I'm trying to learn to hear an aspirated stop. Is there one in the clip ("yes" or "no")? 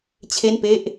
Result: yes